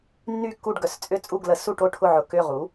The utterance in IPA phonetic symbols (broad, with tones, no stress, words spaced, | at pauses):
nːy˥˨kːu˥˨ɖɡœ˩˥st͡sʼʏ˥˨ t͡sʼu˥˨ɡlə˩˥ su˥˨ʈo˥˨ ʈʰʊ˥˨ʕʊ˨˩ kʏ˥˨ʁu˩˥